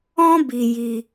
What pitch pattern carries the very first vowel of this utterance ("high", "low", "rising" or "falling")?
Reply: high